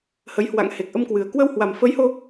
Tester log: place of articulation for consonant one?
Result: glottal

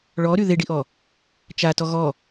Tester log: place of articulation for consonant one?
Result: retroflex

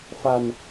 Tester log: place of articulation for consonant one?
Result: labial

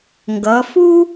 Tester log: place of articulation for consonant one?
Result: velar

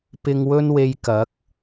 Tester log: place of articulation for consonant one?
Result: labial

